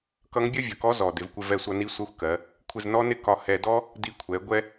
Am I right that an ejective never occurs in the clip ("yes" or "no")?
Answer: yes